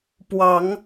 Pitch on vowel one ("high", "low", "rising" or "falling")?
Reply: rising